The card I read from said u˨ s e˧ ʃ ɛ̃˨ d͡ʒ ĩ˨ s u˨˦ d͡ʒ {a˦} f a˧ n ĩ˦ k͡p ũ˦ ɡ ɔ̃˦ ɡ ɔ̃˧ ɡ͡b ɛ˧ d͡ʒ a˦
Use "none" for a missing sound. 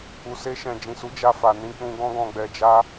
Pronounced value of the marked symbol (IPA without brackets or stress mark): a˦